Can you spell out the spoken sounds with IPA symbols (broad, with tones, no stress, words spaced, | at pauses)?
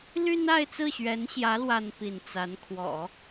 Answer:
ly˥n a˥˧ɪ̯t͡sɹ̩˥˩ɕɥɛ˧˥nɕjä˧˥ lwa˥n pi˥˩n t͡sa˧˥nkʰwɔ̰˨˩˦